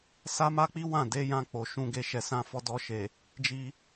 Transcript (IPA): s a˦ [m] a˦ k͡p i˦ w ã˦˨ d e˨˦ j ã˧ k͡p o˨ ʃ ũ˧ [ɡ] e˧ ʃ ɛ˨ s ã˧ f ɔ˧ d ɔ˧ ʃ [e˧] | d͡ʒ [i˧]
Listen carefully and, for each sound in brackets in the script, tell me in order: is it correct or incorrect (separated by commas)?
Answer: correct, correct, incorrect, correct